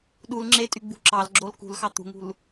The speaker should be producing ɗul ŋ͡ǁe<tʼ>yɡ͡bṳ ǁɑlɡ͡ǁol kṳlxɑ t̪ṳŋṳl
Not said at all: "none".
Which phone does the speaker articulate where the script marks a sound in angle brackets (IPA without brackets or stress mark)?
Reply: tʼ